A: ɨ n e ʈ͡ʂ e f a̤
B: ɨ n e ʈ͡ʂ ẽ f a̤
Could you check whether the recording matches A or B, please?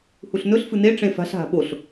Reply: B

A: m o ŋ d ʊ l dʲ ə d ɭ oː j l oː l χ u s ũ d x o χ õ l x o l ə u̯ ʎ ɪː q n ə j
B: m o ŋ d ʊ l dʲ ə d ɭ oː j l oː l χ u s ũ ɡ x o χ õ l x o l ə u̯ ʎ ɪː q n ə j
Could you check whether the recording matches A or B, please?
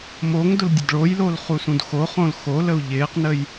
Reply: A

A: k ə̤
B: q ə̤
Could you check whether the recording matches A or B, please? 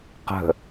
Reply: B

